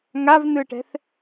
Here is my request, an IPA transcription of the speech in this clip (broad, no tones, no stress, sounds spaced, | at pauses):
ŋ a v n ɯ ʈ ɛ̤ θ